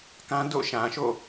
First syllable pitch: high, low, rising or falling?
high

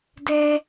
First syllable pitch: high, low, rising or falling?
high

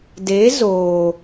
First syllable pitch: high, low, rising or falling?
rising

